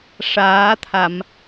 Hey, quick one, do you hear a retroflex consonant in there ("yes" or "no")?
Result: yes